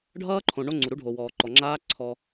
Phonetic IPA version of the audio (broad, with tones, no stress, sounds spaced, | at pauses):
ɖʱ ʌː˦ ǃʰ õ˨ ɳ o˦ ŋ͡ǀ u˨ ɾ u˦ ɖʱ o˨ w ɔː˨ ǃ ɔ˨ ŋ͡ǁ aː˦ ǀʰ ɔ˦